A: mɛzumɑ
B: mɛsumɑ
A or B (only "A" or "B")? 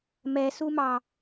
B